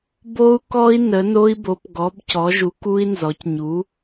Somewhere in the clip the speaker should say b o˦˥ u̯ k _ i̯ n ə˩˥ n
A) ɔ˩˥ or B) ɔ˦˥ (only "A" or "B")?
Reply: B